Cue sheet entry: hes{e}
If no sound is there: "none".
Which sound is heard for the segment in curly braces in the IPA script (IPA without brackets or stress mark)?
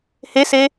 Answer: e